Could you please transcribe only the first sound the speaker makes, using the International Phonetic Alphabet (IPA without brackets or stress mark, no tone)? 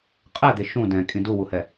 qʼ